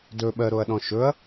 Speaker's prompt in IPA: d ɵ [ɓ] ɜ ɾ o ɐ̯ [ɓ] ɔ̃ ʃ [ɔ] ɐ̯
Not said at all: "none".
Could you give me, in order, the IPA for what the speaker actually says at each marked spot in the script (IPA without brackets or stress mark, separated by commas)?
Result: ɓ, ɗ, ɵ